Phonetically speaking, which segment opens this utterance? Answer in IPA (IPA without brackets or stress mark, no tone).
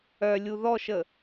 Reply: œ